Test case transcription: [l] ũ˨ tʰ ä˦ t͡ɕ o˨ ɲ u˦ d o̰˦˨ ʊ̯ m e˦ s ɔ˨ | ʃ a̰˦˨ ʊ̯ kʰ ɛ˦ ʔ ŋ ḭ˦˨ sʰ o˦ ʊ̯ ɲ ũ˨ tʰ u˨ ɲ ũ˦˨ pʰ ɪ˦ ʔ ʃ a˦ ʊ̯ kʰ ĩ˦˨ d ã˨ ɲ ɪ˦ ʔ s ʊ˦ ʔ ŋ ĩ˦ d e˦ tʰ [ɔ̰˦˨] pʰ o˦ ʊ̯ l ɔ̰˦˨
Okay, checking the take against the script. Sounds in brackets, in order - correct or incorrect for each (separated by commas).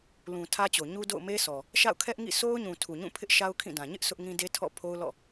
correct, correct